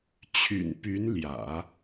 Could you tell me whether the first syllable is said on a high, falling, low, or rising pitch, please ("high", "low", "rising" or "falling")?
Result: low